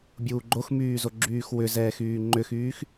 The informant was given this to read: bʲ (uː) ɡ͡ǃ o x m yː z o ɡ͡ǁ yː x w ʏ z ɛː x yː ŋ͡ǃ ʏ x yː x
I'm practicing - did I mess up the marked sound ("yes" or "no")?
no